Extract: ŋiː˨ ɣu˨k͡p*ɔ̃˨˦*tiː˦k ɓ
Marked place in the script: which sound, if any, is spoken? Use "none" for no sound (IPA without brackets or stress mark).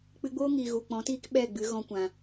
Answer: ɔ̃˨˦